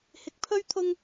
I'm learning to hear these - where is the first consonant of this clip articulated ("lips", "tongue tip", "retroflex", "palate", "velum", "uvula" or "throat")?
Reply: throat